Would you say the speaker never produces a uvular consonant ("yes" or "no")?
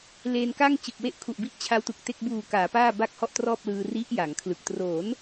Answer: yes